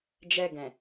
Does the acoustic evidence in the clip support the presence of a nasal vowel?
yes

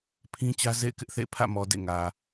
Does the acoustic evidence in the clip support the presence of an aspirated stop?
yes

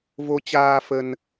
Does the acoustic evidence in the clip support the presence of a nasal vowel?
no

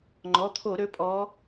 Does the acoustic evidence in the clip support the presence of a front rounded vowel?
yes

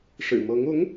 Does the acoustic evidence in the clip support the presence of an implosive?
no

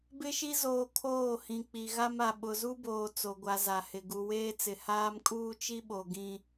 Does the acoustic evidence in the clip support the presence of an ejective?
yes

